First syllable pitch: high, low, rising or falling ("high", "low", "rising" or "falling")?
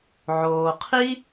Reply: low